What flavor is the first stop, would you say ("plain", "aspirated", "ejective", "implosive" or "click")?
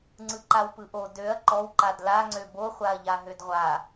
click